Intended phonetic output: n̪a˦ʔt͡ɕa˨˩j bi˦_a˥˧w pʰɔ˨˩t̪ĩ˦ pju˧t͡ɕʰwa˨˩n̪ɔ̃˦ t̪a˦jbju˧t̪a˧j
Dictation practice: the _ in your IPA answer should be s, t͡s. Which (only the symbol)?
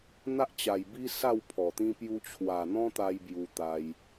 s